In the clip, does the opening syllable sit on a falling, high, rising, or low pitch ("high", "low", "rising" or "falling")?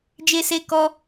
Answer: high